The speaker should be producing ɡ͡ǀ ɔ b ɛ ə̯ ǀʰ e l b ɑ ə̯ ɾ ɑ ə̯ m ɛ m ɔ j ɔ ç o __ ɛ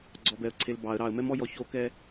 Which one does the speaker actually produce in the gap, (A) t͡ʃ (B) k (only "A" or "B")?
B